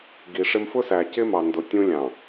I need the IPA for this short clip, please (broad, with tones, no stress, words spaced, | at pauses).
ɡi˨ʂɪ˦m fʊ˦sæ˨cɪ˦mɑ˨ ndʊ˨tʲũ˦ lʲɑ̃˨